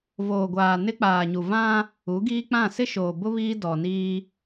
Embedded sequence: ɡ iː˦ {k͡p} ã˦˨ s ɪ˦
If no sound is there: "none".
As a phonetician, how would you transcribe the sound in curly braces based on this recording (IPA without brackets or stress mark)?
k͡p